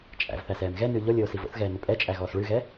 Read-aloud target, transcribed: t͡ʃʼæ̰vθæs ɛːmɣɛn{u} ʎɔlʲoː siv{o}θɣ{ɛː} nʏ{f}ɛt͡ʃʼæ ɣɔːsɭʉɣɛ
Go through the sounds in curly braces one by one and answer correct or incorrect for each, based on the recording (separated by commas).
incorrect, incorrect, correct, incorrect